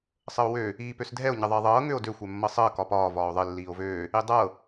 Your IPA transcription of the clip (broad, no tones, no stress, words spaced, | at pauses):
sˤəo̯wø | iːpøsdʱɛo̯ ɲəðˤəe̯ðˤɤː ŋøo̯dø xʷɛmːɤsˤəː kɒpɒː vɒːo̯ðˤə lːiːo̯vøː | idˤɤ